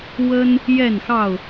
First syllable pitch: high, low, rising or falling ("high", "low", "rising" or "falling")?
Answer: high